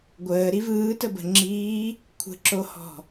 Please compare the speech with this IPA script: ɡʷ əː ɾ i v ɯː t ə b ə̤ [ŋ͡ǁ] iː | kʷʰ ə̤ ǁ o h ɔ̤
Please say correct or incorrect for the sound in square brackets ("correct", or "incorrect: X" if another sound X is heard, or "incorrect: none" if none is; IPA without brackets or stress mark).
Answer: correct